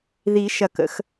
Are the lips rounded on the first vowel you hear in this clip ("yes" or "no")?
no